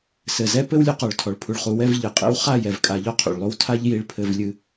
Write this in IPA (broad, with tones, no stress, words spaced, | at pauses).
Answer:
sɘ˨zɛ˦ pɘ˦wlʲo˧qɔ˨ɭtʰɔ˨ɭ pʰu˨ɭχu˨wɛ˦˨v ʎɨ˨qʼḛ˦w χa˦˨ jɛ˨v kʼa˧ʎɔ˦qʰṵ˨ɭlˠo˦w tʰa˦ʎ ji˧ɭpʰɘ˧v lʲɨ˧